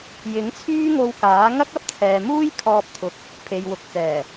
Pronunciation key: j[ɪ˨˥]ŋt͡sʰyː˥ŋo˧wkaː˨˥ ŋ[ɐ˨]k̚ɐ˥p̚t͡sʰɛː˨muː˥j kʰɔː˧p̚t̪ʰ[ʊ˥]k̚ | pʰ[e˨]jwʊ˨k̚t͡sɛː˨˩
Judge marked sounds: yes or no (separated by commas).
yes, no, no, yes